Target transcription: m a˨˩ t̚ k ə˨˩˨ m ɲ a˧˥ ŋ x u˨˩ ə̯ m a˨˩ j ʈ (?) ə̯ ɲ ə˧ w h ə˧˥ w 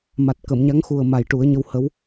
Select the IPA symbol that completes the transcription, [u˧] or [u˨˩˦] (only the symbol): u˨˩˦